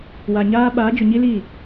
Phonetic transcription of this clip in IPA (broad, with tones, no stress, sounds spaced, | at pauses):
w a˨ ɲ aː˦ ɓ aː˨˦ d͡ʒ ʊ˨ ɲ i˦ l iː˦˨